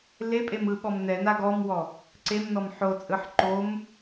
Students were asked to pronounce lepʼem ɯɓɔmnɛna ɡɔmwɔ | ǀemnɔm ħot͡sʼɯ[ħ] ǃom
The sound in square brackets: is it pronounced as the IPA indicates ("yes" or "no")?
yes